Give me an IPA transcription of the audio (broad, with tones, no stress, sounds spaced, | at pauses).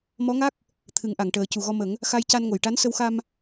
m ɔ˧˥ ŋ a˦˥ k̚ | t̪ʰ ɨ˨˩˦ ŋ ʔ a˨˩˨ ŋ ʈ əː˨˩˦ c u˨˩ ɣ ɔ˧ m ə˨˩˦ ŋ | x a˧ j c a˧ n ŋ o˨˩˨ j ʈ a˧˥ n s ə˧ w x a˧ m